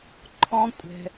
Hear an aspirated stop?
yes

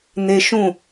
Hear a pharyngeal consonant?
no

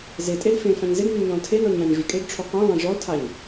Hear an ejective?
yes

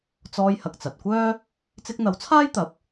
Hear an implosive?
no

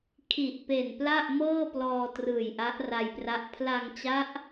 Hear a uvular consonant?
no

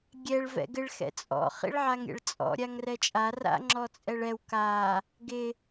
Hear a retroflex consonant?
yes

